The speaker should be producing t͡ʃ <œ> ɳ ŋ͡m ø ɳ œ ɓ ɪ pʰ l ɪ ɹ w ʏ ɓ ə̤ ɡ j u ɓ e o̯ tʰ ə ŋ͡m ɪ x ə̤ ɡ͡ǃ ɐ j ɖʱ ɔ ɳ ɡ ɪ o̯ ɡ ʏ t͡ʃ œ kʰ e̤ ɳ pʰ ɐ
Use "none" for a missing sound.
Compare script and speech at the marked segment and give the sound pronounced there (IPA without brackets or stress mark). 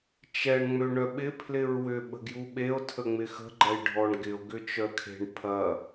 ɛ